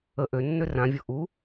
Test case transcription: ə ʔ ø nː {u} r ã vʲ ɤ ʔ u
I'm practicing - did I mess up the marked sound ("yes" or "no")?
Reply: yes